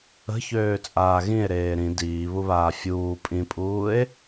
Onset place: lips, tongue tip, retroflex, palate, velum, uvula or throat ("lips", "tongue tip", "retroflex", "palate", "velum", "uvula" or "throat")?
palate